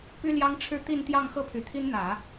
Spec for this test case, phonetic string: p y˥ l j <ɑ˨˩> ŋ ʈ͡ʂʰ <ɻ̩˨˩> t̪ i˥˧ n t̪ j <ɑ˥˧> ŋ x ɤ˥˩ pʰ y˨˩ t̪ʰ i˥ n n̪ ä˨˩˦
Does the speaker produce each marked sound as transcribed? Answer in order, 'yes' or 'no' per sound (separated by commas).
no, no, yes